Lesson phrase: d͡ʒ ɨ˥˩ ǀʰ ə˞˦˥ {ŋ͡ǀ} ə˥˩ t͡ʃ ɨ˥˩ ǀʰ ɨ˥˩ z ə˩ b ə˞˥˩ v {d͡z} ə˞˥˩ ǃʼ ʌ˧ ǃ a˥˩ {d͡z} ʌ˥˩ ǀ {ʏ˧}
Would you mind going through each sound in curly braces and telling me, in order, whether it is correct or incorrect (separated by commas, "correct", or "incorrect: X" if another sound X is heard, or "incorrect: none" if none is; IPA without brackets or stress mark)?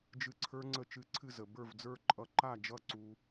correct, correct, incorrect: d͡ʒ, incorrect: u˧